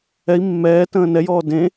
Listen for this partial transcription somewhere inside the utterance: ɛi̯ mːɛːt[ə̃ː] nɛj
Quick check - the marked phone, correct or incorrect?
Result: correct